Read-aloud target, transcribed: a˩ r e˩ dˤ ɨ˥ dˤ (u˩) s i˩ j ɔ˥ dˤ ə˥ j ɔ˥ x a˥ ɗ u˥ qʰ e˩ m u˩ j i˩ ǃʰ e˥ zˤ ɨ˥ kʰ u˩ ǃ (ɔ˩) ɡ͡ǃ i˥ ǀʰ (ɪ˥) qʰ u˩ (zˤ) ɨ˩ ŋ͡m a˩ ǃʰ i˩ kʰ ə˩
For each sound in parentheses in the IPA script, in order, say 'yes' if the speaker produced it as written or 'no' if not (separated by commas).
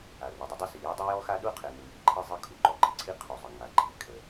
no, no, no, yes